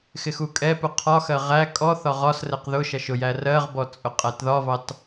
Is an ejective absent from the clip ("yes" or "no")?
no